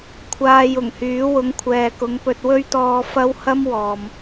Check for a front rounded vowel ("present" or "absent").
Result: present